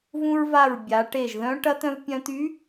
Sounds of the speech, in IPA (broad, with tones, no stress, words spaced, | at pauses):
vũ˧ɹva˧˩ɹ bʲa˩˧ʈe˧˩ʒðœ̃˧˥ ʈɐ˧˥t̪œ̃˧v pʲœ̃˧t̪y˧˥